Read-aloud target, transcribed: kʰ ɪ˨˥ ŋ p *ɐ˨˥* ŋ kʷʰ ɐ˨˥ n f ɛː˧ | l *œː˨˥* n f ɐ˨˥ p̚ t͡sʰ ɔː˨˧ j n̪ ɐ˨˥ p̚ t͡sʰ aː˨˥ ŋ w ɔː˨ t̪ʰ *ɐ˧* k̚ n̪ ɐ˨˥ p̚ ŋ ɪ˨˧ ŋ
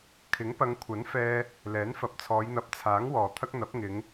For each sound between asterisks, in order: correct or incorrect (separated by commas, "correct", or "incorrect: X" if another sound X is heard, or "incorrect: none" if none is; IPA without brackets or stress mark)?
incorrect: ɐ˨˧, incorrect: ɛː˨˥, incorrect: ɐ˥